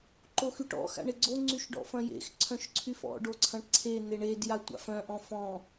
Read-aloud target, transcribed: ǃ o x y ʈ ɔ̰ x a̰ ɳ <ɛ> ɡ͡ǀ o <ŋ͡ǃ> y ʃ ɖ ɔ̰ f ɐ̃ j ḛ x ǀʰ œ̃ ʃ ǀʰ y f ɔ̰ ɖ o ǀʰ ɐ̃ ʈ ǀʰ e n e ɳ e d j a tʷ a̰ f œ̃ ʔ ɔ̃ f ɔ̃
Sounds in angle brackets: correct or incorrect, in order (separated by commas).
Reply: incorrect, incorrect